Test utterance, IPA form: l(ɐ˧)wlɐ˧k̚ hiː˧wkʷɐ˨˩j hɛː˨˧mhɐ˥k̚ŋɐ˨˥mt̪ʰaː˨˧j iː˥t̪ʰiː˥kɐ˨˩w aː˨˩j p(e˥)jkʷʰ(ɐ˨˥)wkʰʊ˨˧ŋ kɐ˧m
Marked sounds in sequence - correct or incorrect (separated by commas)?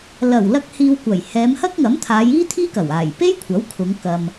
incorrect, correct, correct